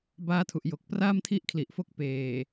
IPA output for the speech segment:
b aː˦˥ tʰ u˨˩ ʔ j o˨˩ k̚ p r aː˥˩ m tʰ i˥˩ ʔ kʰ l i˨˩ ʔ f o˦˥ k̚ p eː˨˩

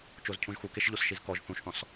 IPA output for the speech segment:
t͡ʃ o z cʰ ũ ʒ x u k e ʃ ʎ o s ʃ i z k ɔ ʒ θ ũ ʃ θ ɔ̃ s

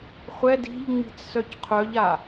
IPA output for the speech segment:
χʷ ɛ d i̤ ʎ ŋ͡m i̤ t͡s s œ c qʰ œ ʎ a

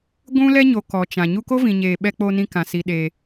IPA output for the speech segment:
ɡʷ ũ˦ l ɛ˦ ɲ o˨ k ɔ˨ t͡ʃ ã˨ ɲ u˧ k o˦ v ĩ˨ ɲ eː˨ ɓ ɛ˧ k͡p o˧ n ĩ˧ k ã˨ s i˧ ɗ e˧

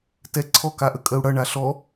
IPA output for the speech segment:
t ɛ ǀʰ ɔ k a ʔ ə kʼ ə u̯ ɽ ʌ ɳ a ɬ ɔ

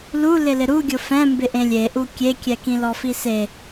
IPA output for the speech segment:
l u l ɪ l ɪ ɾ u ɡʲ ʊ f ɛ̃ m b ɪ ʔ ẽ lʲ e ʔ u kʲ e kʲ ɛ k ĩ l ɔ f i s e

